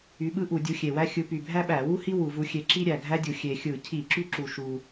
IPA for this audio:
y˨˦ɓɯ˥ʔu˧˩˧ dʲu˨˦xʲe˨˩wæ˥ xʲɯ˨˦py˨˩ bʱæ˥ɓæ˧˩˧wu˥hi˥ wu˧˩˧vu˨˦xʲe˨˦ǁi˥ ɾʲæ˨˩ɡʱæ˥dʲu˨˩ xʲe˨˩xʲɯ˧˩˧ cʰi˧˩˧ ǁy˥ǁu˨˩ʃu˨˩

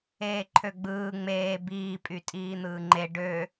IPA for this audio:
eːǃʰøɡ͡bɯː ŋ͡meː biː pʼytʼiːn̪ɯːŋ͡ǃe ɖø

